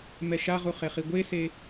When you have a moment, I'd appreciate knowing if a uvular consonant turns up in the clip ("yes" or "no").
yes